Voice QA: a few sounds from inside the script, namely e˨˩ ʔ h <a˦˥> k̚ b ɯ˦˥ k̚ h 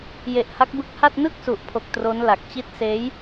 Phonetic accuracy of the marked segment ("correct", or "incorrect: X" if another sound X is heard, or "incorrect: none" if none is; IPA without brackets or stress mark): correct